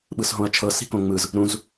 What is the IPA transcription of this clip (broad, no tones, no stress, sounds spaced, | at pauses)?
ɓ ɯ s ɦ õ ɐ̯ t͡ʃʰ ɤ s i̤ k õ ŋ͡m ɯ z | ɾ ũ z